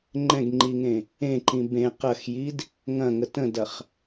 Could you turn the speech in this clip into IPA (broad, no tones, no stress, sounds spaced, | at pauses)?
ŋ͡ǃ ɛ̃ ɡ ŋ͡ǃ i ŋ ẽ | ẽ ǃ ĩ b ẽ q ɐ x j i d | ŋ ɐ̃ ŋ ə t ə̃ d ɐ χ